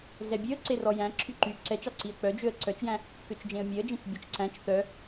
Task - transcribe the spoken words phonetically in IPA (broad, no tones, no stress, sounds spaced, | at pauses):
ɮ ɛ bʲ ø ə̯ ǀ e r ɔ j æ̃ ǁʰ y ǃ y ǀ ɛ t͡ʃ ɑ ǀ i ə̯ k͡p œ d͡ʒ ø ə̯ ǀ œ t͡ʃ j æ̃ | k ø t͡ʃ d͡ʒ ẽ ə̯ mʲ e ə̯ d͡ʒ ẽ t͡ʃ bʲ ɔ t͡ʃ ǀ æ̃ t͡ʃ θ œ